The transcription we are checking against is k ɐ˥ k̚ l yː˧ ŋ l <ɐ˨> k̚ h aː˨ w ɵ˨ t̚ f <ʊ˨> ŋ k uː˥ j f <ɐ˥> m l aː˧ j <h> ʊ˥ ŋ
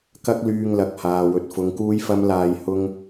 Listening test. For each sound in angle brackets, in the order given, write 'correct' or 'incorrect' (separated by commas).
correct, incorrect, correct, correct